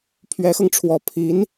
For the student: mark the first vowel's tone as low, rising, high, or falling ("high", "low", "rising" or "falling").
rising